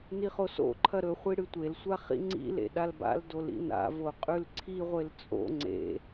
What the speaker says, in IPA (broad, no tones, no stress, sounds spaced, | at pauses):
n i χ o s o̰ ǃʰ ɐ ɾ ɵ χʷ i ɽ ɨ tʷ e l sʷ a χ ḭ ŋ͡ǀ ḭ l ḛ ɗ a l b a̰ l d o l ḭ n a̰ v o qʼ ʉ l ǀʰ i ʁʷ e l t͡sʼ o̰ ŋ͡ǀ ḛ